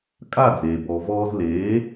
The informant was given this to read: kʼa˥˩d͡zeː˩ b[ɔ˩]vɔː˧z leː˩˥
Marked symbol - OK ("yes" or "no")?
yes